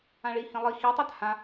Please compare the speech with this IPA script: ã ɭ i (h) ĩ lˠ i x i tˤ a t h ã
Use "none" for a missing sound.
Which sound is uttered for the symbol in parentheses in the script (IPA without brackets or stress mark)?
h